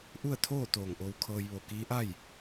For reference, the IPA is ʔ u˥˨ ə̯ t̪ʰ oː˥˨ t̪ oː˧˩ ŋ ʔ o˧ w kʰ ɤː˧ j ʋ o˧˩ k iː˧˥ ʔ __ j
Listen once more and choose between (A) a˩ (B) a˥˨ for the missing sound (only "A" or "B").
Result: B